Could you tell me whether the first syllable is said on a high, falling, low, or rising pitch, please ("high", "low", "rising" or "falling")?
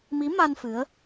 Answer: rising